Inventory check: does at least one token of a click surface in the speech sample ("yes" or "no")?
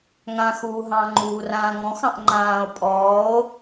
yes